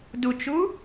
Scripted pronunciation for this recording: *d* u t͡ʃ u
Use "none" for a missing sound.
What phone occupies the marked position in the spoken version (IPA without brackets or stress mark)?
d